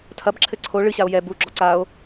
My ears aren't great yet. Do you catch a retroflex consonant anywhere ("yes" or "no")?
yes